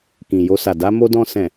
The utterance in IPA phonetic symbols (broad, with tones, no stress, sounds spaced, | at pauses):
k ĩ˨ j o˧ s a˨ d a˧ m o˧ d ɔ̃˧ s ɛ̃˨